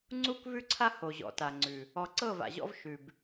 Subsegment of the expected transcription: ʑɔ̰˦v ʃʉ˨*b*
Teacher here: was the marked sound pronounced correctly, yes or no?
yes